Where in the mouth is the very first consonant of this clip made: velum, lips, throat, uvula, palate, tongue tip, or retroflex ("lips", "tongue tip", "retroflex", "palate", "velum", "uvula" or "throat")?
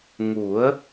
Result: velum